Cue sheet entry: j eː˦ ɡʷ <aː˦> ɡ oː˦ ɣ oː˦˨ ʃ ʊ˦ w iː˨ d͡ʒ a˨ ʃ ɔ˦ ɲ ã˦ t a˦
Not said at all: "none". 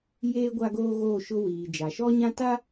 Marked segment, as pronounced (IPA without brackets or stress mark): a˦